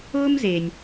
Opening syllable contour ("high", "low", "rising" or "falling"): high